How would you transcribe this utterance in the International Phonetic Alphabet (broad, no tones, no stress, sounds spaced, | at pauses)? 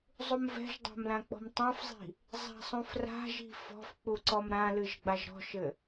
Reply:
zˤ u m v ɛ̤ ʒ dˤ a̤ m l ã k͡p ɔ̤ m tˤ ã f zˤ i̤ | zˤ a̤ sˤ ũ f r a̤ ʒ i̤ f ɔ̤ f k͡p u ǀ ɔ m ɾ ã l ɨ ʒ ɡ͡b a ʒ ɾ ɔ̤ ʃ ɘ